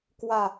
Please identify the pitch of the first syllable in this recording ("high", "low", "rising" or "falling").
low